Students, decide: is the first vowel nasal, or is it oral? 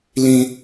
nasal